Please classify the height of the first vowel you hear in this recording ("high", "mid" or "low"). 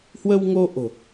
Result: mid